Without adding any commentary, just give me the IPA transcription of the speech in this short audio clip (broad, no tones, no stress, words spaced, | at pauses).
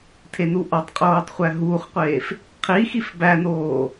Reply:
tʰenuʔɒtˤqʼoːtˤ χʷæɦuːχqʷeːf | qʰi xifbænoː